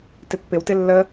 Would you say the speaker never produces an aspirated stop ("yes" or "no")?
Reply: yes